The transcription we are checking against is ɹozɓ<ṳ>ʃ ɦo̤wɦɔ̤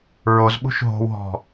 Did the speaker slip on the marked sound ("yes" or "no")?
no